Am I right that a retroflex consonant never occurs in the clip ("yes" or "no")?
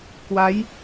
yes